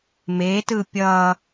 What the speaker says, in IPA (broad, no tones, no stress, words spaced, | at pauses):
metɯ pʲʌ